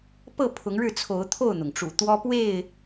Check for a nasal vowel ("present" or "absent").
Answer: absent